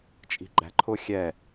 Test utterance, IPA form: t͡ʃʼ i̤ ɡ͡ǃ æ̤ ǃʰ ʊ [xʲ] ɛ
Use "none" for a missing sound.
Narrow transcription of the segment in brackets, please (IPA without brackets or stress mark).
xʲ